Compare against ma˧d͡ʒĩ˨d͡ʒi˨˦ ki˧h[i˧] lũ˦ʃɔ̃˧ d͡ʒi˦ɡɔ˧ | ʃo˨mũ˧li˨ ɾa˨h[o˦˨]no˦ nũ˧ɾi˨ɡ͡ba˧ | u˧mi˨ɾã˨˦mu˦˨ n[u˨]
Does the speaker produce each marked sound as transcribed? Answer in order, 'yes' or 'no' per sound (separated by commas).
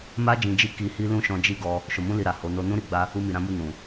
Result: no, no, no